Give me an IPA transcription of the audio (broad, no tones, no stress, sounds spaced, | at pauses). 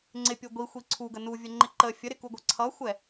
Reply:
ŋ͡ǀ ɪ pʲ u ɡʷ i xʷ i ǀʰ u ɡ ə n u vʲ ə ŋ͡ǃ ɪ ǃ ə fʲ ə ɾ ɪ k u ɡʷ ʌ ǀʰ ʌ xʷ ɛ